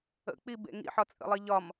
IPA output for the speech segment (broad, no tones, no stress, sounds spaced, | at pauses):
ə̰ k͡p i b ḛ ŋ ḭ ħ ɒ t͡sʼ ə̰ lˠ i ʎ ɒ m